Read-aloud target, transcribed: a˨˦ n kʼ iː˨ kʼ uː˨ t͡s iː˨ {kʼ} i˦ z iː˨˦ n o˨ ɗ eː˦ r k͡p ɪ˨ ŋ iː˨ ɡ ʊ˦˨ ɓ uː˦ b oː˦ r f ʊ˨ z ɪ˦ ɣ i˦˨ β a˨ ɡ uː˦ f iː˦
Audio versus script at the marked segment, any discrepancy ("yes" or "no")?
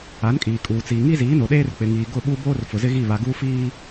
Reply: yes